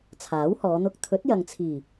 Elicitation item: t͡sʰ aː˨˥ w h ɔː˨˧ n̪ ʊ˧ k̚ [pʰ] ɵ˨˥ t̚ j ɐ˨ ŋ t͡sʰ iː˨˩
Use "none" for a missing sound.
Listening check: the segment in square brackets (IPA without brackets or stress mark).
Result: t̪ʰ